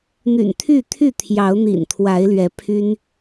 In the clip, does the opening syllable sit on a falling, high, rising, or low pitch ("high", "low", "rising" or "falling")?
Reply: low